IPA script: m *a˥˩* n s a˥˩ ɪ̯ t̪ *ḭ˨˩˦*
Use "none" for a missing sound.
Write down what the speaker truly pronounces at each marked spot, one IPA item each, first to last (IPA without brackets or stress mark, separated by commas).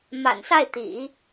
a̰˨˩, ḭ˨˩˦